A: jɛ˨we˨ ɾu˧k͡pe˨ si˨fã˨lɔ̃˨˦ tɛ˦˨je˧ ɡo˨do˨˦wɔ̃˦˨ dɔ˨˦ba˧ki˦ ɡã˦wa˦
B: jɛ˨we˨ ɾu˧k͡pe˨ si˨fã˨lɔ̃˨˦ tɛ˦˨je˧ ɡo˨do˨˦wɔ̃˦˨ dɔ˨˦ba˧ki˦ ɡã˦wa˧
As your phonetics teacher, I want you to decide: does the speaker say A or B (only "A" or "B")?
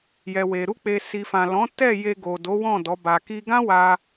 B